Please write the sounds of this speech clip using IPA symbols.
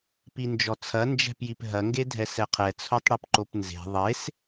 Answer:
pind͡ʒɔt͡sʰɐ nd͡ʒɛ̤pjipɦɐ ŋɡedʱɛsɛqʰɛ t͡sʰotˤɽipǃopnze̤ ðˤes

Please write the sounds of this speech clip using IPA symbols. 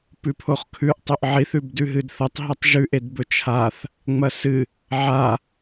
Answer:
pʉpʰoχkʰʉʔ tˤɵʔʕiθ ʉbdʉɦɨdθɐtˤ ɦɐtˤʒʉʔ edbɵt͡ʃʰaθ | ŋ͡mɐsɨ | ʕa

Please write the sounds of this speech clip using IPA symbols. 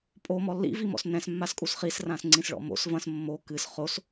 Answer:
pʼomɔ lːḭvimɔ̰s nɛ̃smːaskʼus χisrãsŋ͡ǀĩsɭɔ̰ mo̰s vɐ̃s mːo kɨs χos

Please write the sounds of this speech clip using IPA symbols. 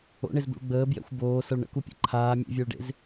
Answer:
o̰ɳezbṵɭ ɡ͡bəːbjɛ̰xʷ boːsʌɭ ɳə̰kupʲɛ̰ ǃʰaː mʲḛvʲəːɭɖḛz

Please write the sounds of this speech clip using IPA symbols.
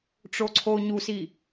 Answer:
ʈ͡ʂoǀʰo ɲusi

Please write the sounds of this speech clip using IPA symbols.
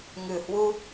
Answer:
ŋɨ˨˩hwu˧

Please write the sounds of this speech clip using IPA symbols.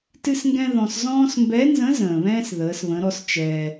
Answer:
tɨ˥sŋɡɛ̃˥ðɔ̃˧s zɔ̃ː˥s mbɛ˧˥nzə̃˧˥ zə̃ː˩βɛ̃ː˥s ðəː˩˧sβə̃˩˧ɾɔ˧s t͡ʃɛː˩

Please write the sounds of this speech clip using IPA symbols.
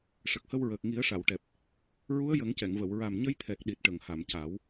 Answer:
ʂə˨˩k̚hə˧wɹəː˨˩k̚ ŋi˨˩˦ə̯ʂa˨˩˨wʈɛ˨˩p̚ | ɹu˧˥ə̯jə˨˩˦ŋcɛ˨˩˨ŋvə˨˩˨w ɹa˨˩mɲə˧jt̪ʰɛ˨˩k̚ ɗi˨˩t̚ʈə˨˩˨ŋha˨˩˨m ca˨˩˦w

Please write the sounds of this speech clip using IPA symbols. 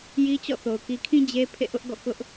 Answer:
ji˦t͡ɕɔ̰˦˨θo˨ʊ̯ ki˨kʰĩ˦ d͡ʑe˦ pʰḛ˦˨ʔʊ˦ʔɡɔ̰˦˨ kʊ˦ʔ

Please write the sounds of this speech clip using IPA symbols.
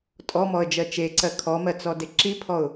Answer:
tʼɔmɔə̯d͡ʒɜ t͡ʃeǀɜ kʰɔmɜt͡sɔde ǁipʰɔʊ̯

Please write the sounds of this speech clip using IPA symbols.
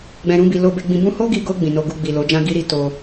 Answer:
ɡ͡bɛ̃˧ɾũ˦bi˧ lo˧be˧ ɡ͡bĩ˧bũ˦ ho˦ɡi˧ɡo˧ ɡ͡bĩ˨no˧ɡu˧ ɡ͡bi˨lo˨˦d͡ʒã˦ ɡi˦ɾi˦to˧

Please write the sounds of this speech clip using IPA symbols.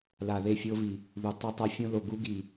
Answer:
la˨ðe˦˨fʲo˦vi˨ | ðu˨tˤʌ˦tˤa˦ fʲõ˦lo˨ɡu˦ ɡi˨

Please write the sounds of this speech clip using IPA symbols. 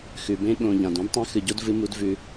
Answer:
xʉ˨bẽ˦ ɠõ˨ ʎã˨dũ˦dtˤã˦ xɨ˨ɟo˦d vɨ˦mu˦d vʉ˦

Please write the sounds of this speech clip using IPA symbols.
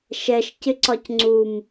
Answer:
ʃɛʃcɪǀɒc ŋ͡ǀum

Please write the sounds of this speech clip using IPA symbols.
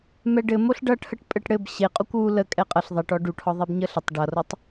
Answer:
mɛɖɘmoɬ ɖʌʈʰəʈ pʼɘʈɽɘb ɕe qʼokʷwu lə kʼɛqʼʌɬ ðˤeʈɔ ɖuʈʰɔ ðˤebɲəɬətˤ ɖʌrotˤ

